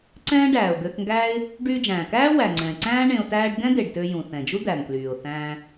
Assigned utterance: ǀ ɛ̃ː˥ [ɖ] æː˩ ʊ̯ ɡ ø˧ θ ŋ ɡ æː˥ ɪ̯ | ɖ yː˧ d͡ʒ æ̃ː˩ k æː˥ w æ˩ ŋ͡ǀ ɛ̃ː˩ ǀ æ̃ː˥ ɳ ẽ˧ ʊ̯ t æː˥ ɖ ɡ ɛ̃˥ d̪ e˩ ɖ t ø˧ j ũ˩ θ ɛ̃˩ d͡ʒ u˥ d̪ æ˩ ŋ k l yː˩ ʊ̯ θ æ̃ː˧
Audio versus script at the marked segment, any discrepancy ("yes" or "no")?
no